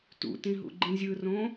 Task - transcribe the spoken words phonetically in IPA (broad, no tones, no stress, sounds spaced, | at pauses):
t ṵ t ĩ ɦ ṵ ɡ͡ǃ ĩ zʲ ɯ r õ